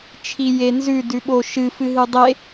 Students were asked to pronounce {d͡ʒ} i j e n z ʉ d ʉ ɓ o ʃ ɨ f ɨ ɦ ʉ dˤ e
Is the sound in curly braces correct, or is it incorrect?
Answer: incorrect: t͡ʃʰ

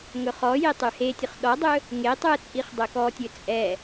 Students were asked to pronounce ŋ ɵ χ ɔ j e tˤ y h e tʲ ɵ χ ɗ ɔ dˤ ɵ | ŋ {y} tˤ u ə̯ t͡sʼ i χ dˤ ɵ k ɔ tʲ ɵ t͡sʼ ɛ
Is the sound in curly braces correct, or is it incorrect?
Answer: incorrect: e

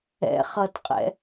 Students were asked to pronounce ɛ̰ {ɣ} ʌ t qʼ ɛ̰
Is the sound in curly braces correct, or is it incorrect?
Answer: incorrect: χ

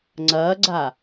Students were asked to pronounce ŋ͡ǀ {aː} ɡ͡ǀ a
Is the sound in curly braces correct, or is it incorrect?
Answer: incorrect: ɐː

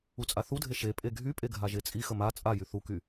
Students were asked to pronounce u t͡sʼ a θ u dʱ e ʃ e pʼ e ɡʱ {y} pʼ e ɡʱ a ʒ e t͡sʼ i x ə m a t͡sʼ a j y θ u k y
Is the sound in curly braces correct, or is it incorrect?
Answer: correct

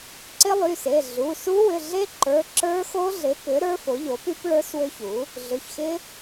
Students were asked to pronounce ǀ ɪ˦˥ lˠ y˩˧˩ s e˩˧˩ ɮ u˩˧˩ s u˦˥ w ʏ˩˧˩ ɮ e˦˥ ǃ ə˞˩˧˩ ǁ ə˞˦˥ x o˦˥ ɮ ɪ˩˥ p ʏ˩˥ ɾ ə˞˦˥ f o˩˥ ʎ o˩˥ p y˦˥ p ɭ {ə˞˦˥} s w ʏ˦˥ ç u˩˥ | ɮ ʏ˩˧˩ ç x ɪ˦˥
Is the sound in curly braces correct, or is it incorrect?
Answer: correct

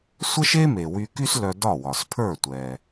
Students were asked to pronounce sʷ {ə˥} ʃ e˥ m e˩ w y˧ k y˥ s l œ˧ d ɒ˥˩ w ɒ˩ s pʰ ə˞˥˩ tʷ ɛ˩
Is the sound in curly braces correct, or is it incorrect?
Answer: correct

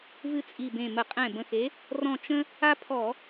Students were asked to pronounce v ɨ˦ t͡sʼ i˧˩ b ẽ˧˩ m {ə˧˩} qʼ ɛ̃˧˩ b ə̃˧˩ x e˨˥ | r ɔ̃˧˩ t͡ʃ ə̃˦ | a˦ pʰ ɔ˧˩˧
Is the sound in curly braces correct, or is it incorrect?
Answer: incorrect: ə˧˩˧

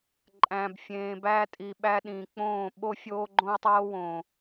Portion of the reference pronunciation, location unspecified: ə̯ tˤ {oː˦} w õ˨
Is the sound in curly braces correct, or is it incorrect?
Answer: correct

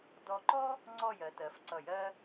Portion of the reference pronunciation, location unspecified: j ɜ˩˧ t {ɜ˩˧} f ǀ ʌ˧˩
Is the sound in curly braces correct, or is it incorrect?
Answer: correct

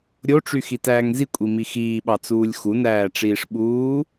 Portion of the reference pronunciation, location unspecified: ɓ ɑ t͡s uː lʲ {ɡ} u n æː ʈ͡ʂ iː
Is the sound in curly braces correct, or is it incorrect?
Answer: incorrect: x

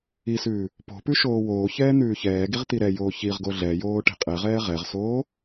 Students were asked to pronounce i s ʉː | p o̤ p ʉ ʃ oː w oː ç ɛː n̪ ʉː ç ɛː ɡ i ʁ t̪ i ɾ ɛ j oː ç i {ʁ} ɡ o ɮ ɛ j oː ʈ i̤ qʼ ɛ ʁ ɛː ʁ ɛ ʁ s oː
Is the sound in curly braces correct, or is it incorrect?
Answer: correct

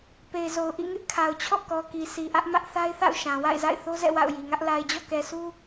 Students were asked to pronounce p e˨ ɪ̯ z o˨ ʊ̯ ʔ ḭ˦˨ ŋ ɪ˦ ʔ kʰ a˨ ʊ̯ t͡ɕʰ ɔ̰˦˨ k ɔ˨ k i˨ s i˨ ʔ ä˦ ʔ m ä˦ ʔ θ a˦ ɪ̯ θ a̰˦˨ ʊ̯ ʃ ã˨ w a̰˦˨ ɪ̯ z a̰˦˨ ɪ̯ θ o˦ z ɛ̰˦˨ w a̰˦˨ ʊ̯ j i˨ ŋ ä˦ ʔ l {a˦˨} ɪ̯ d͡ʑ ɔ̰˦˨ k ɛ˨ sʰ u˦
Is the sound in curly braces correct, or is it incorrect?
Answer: incorrect: a˨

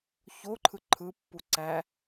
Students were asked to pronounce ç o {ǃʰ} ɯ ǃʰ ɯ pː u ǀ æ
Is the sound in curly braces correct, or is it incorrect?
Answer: correct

